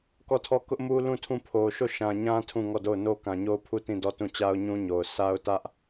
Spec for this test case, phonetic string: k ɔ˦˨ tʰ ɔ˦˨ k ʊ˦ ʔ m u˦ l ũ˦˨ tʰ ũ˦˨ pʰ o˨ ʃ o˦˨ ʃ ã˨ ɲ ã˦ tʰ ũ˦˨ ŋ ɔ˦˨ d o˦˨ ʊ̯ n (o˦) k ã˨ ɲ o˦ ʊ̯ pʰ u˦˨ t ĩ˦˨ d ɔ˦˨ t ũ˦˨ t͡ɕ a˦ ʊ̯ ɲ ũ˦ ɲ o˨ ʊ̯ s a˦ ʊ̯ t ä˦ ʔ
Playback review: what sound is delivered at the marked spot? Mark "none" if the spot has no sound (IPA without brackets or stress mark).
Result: o˦